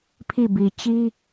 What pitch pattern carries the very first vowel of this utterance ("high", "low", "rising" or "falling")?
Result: falling